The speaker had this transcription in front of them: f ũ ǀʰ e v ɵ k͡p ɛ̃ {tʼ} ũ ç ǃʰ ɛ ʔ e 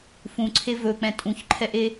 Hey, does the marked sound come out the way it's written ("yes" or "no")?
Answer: yes